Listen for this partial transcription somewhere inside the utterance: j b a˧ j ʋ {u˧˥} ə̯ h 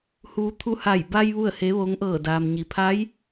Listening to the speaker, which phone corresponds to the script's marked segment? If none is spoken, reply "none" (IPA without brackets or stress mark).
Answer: u˥˨